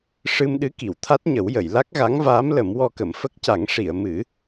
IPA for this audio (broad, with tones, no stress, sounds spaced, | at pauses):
ʂ ɨ˧ m ɗ ɨ˧˥ k i˨˩˨ w t̪ʰ a˦˥ t̚ ɲ ə˨˩˦ w j ə˨˩˨ j l a˦˥ k̚ ɣ a˧˥ ŋ v aː˧˥ m l ə˨˩˦ m w ɔ˧ k ə˨˩˨ m f ə˦˥ k̚ c a˨˩˦ ŋ ʂ i˨˩˨ ə̯ m ɨ˨˩˦